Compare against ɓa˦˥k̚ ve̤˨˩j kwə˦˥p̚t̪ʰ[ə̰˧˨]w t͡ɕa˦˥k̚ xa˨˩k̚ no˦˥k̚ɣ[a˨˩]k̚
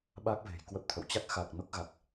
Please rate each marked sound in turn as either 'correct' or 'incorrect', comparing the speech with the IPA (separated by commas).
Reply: correct, correct